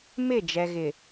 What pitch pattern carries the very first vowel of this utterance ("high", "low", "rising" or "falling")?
falling